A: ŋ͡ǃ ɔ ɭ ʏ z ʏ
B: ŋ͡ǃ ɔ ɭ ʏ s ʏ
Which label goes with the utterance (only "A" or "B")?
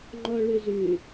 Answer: A